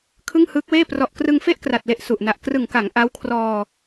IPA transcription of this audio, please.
kʰɯ˥˩ŋhɯː˦˥k̚weː˥˩ prɔ˨˩ʔkrɯ˧ŋ fe˥˩ʔkra˨˩t̚le˨˩ʔ su˨˩ʔna˨˩ʔ krɯ˨˩ŋka˩˦ŋ ʔa˦˥w kʰrɔː˧

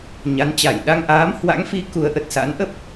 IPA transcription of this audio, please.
ɲa˨˦nt͡ɕa˧˩j ɗa˧ŋʔaː˨˦mhwa̰˧˥ŋfi˨˦ ku˨˦ə̯ʔə˨˩t̚sa̰˧˥n ʔə˦˥p̚

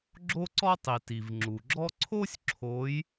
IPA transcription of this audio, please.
ɡ͡ǁo˥ǀɔ˥tˤi˩ ti˩vŋ͡ǁu˩ɡ͡ǁɔ˥ ǀʰo˥sʲǁʰo˨˦j

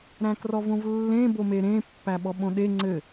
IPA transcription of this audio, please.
ɾæ̃krɔvõvlːẽ bomeɾẽ pːæɓɔɓõɗe ŋ͡ǀɘ

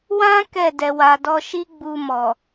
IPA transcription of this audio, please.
wã˦ kɛ˦˨ dɛ˨wa˨dɔ˧ʃi˦ ɡ͡bu˧mɔ˨

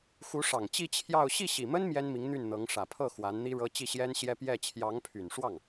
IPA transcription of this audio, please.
xu˧˥ʂɑ˨˩ŋt͡ɕi˥˧ t͡ɕʰjɑ˥˧ʊ̯ ɕi˥˩ɕi˨˩mə˥n mjɛ˥nmi˧˥ŋn̪y˥˩nn̪ɤ˧˥ŋ ʂä˨˩pʰɤ˥˩ xwa˧˥nn̪i˥ɻɤ˥ t͡ɕi˥˩ɕjɛ˥nɕjɛ˥ pjɛ˥˩ t͡ɕʰjɑ˧˥ŋpʰy˨˩nʂwɑ˥˩ŋ

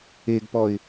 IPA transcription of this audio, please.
eɡpɔɪ̯

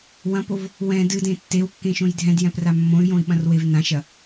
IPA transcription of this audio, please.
wɐ̃pov | wɛ̃ dɨdẽ tːewkːẽʃõj dʱɛ̃djɛ̃pra mːõy̯jõi̯ɓɐ̃rwev nãʃɐ

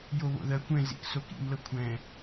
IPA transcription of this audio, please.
joβo̰ðɜ kʷɛ̃ zḭksokḭm lɤkʷʰɛ̃

